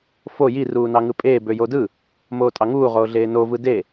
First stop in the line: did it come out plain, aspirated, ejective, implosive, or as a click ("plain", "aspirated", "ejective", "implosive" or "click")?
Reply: ejective